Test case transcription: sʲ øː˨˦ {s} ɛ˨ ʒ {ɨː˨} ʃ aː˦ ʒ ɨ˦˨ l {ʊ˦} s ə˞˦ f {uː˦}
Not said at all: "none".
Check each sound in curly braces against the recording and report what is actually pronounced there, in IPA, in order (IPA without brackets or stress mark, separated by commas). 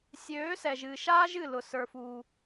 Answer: s, ɨː˨, ʊ˦, uː˦